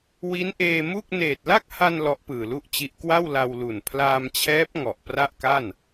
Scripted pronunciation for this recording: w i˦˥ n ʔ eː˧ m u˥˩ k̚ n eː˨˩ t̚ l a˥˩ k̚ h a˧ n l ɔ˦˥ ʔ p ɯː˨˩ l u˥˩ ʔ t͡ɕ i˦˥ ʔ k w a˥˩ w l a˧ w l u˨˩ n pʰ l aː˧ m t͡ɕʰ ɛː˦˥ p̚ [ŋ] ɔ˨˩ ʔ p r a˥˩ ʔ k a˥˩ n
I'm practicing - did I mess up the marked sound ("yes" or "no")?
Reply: no